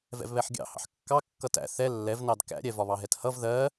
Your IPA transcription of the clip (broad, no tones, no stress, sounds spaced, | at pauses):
v ɛ̰ v β ɛ ħ ɡʲ ɑ̰ h ɑ̰ ħ kː ɑ kː ʌ t æ̰ θ ɛ lː ɛ v n ɑ d k æ̰ ɾʲ ɛ v ɒ β ɑ ɦ ɛ t h ʌ v ð ɜ